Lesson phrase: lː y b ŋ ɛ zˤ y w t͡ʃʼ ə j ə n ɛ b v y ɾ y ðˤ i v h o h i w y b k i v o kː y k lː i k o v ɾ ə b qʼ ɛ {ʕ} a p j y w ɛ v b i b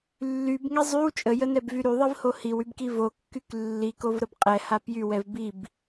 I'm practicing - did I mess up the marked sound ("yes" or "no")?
yes